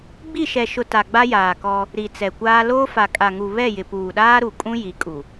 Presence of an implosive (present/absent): present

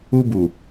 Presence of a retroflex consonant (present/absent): absent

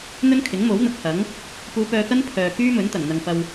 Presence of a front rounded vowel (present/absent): present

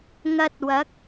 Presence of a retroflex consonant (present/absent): absent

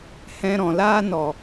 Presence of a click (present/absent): absent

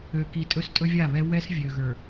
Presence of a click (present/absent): absent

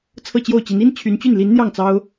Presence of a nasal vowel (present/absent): absent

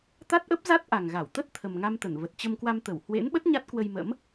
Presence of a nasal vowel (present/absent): absent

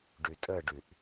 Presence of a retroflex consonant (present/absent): present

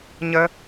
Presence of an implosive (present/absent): absent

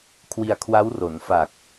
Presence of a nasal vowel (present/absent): absent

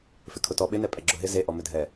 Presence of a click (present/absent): present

